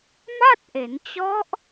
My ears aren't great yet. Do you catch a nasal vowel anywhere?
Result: no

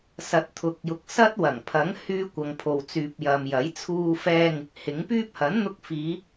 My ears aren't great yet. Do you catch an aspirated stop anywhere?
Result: yes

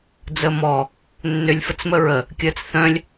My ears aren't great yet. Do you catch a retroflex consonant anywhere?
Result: no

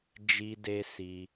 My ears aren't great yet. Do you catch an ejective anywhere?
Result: no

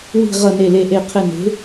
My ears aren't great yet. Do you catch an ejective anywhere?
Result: no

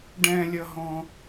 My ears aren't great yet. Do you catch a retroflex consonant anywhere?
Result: yes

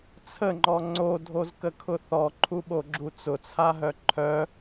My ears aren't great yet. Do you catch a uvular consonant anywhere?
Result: no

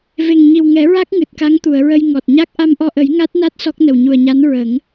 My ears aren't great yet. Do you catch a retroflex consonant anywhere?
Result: no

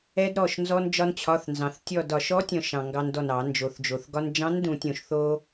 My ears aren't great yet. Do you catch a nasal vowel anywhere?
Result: yes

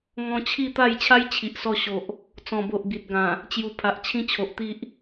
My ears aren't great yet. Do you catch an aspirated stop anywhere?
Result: yes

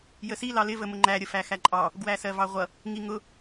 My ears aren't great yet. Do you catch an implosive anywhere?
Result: no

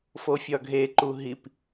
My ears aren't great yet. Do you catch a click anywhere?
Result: yes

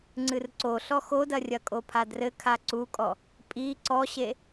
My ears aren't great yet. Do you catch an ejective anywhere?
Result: yes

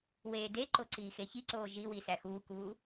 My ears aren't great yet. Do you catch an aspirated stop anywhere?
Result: no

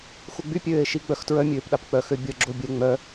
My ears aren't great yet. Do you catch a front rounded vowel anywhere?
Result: yes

